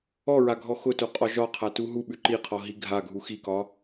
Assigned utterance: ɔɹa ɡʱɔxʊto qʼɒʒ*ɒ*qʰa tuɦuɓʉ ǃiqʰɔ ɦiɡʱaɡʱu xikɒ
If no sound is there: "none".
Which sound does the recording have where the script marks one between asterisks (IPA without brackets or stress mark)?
ɒ